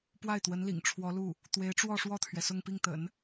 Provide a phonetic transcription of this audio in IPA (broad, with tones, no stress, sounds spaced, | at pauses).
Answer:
p w a˥˩ ɪ̯ t̪ w ə˧˥ n l ḭ˨˩ ŋ ʈ͡ʂʰ w ɔ˧˥ l u˥˩ | t̪ w e˧˥ ɪ̯ ʈ͡ʂ w ɔ˥˧ ʂ w ɔ˥˩ t̪ʰ ɥ ɛ˩ s ʊ˥˧ ŋ p i˥˩ ŋ t̪ ə̰˨˩˦ n